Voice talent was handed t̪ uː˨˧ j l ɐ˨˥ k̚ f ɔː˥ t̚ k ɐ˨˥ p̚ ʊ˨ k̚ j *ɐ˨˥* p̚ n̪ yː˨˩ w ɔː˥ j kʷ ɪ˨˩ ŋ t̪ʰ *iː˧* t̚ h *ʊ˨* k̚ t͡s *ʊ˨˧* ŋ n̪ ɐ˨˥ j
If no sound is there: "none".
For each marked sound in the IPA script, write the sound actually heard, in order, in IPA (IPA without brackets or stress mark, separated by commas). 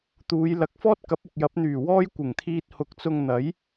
ɐ˨˥, iː˧, ʊ˨˥, ʊ˧